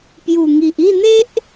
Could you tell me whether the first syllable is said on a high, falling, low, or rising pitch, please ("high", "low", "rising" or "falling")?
low